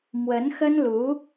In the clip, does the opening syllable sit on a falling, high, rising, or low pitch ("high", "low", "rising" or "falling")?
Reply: rising